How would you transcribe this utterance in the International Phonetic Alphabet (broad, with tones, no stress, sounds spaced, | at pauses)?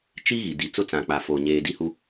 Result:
t͡ʃ i˦ ɣ i˨ d i˨ t͡s ʊ˦ t͡s ã˨ k͡p a˨ f o˨ ɲ eː˨ d i˦ h u˦